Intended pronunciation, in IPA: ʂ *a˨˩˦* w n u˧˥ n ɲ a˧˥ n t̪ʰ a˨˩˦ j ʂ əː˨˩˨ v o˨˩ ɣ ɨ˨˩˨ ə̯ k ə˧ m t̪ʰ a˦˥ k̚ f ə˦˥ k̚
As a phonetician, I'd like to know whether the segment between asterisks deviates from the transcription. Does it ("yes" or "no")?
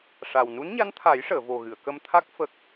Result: yes